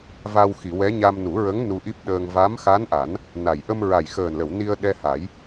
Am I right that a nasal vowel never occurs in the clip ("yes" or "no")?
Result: yes